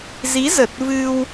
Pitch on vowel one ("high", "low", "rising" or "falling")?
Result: rising